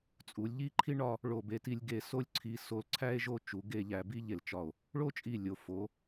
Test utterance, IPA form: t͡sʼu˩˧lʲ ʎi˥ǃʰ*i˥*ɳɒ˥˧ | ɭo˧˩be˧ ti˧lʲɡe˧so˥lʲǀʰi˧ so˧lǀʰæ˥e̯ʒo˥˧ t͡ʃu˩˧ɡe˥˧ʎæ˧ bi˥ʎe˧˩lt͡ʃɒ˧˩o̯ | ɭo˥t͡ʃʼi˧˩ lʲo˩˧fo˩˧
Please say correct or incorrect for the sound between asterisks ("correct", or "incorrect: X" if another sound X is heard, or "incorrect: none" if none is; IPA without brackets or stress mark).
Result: correct